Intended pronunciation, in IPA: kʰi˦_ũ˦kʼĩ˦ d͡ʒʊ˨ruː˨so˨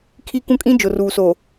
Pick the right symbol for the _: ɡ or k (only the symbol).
k